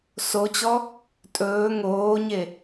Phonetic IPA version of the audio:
s o t͡ɕ ɔ | tʼ ɵː ŋ oː ɲ e

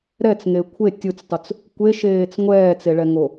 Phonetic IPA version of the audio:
ɾ ɛ t͡s ŋ e kʷʰ e tʲ ɯ t͡s tˤ u t͡s | kʷ e ʃ eː t͡s ŋʷ ɛː t͡s e ɭ ɛ ŋ o

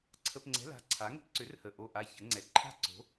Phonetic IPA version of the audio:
ǀʰ ə˧˥˧ p ŋ͡ǀ ɛ̤˧˥˧ l a̤˧˥˧ ǀʰ a˨˥ ŋ ə̤˦˥ p ǀ ʏ˨˥ r h ə˨˩ ʔ o˥˨ ʔ a˦˥ ç ə˨˥ ŋ͡ǀ ɛ˨˥ ǃʰ a̤˥˨ ǀ o̤˨˥

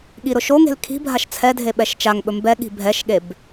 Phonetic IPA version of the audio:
ɠ i ɾ ʊ ʃ o ŋ e̤ l kʰ i̤ bʱ a ʃ t͡sʰ ɛ dʱ e ɓ ɛ ʃ t͡ʃ a ŋ ɓ ɵ m b ɛ ɠ i̤ bʱ ɛ ʃ ɠ e b

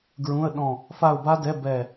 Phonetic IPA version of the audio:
ɡ ɹ ũ˧˥˧ ə̯ ɗ ɔ̃˦˨ | f a˦˨ ʊ̯ b a˦˥ d ɛ˧˥˧ b ɛ˦˨

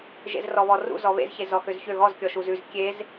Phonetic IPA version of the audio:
ʒ ḛ z r ɔ β ɔ r ṵ z ɔ β ḛ z ç e z ɔ x ø z ç ø ɣ ɔ z kʲ ɔ ʃ u z ʉ z kʲ e z

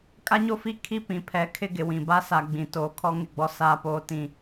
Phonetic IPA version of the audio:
kʼ a˦ ɲ o˦ f i˦ kʰ i˦ p ĩ˨ pʰ ɛ˨ kʰ ɪ˦ ɡ ɪ˨ w ĩ˨ b a˦ s a˨ ɡ͡b ĩ˨ t oː˨ kʰ ɔ˦ ŋ ɪ˦˨ ɡ͡b ɔ˦ s aː˦ p oː˦ t ĩ˦

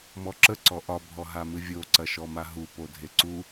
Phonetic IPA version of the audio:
m ɔ ǁ ə ǀ ɔ ʔ ɒ bʱ ɔ ɦ a m ɨ vʲ o ǀ ɐ ʃ ɔ m a ɦ u p o dʱ e ǀ u

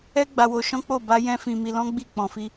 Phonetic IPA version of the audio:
ɛ˦ ɡ͡b a˧ w o˧ ʃ ɔ̃˦ k͡p o˦˨ b a˧ j ɛ̃˦ f ĩ˧ m i˧ l ɔ̃˦ ɡ͡b i˦˨ k͡p ɔ̃˨ f i˧

